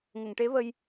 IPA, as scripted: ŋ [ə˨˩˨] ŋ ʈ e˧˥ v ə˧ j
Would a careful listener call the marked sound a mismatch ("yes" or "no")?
no